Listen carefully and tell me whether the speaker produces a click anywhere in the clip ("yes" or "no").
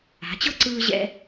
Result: yes